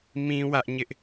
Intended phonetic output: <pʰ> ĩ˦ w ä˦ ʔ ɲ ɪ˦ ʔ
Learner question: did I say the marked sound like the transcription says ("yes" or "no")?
no